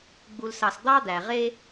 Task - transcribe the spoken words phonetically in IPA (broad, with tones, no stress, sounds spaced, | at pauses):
ɡ͡b u˨ l s ɑ˨ s d̪ ɑ˥ d̪ æ˩ ʁ e˥